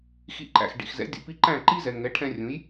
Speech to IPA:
x ḭ˧ ǃ æ̰˩ x ɖ ḭ˩ x z ɛ̰˩˥ dʲ ṵ˩ p i˧ ǃ æ̃˥˩ ǃ i˥ z ɛ˩ ŋ ɛ˩˥ ʈʰ ɛ̃˧ rʲ ũ˩˥ j

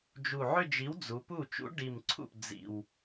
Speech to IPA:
d͡ʒ u˨˩ ʕ ʏ˥˧ d͡ʒ i˨˥ w d͡z u˩˧ p u˥˩ t͡ʃ ṵ˨˥ ɖ i˨˩ m ǀʰ ṵ˥˩ p d͡z ḭ˨˩ w

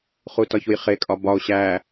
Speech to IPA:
χ u t ɒ ç u j χ e kʼ ɒ b ɒ o̯ ɕ æ

